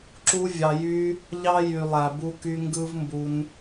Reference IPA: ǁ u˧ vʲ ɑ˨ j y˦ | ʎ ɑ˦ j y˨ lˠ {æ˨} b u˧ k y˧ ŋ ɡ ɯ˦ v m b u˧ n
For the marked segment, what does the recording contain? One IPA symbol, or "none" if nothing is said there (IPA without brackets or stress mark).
æ˨